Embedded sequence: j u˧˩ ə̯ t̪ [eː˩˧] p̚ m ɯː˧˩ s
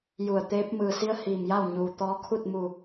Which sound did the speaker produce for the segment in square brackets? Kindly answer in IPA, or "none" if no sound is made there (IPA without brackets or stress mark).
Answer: eː˧˥